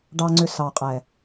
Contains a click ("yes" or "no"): yes